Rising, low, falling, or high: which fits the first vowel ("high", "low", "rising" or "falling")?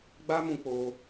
high